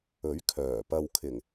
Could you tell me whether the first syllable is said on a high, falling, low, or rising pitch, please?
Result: rising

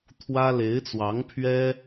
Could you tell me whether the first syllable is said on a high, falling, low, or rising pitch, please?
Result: high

